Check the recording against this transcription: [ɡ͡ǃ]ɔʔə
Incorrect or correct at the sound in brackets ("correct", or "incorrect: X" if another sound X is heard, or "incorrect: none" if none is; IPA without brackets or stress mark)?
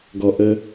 incorrect: ɡ